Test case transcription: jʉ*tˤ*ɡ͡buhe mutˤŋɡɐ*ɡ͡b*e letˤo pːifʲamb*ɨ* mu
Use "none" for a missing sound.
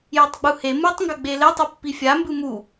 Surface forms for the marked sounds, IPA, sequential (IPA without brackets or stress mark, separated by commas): tˤ, ɡ͡b, ɨ